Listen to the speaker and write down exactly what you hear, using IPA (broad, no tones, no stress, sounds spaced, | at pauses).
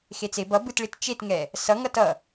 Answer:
x e t͡s e b ʌ b ɯ t ɭ i t t͡ʃ e t ŋ ɛ | s ʌ ŋ ʌ t ʌ